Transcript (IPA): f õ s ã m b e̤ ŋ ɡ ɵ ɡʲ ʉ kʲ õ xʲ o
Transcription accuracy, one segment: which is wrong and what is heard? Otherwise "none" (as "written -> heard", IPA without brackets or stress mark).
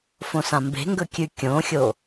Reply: ɡʲ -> kʲ